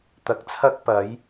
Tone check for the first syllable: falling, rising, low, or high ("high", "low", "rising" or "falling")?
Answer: rising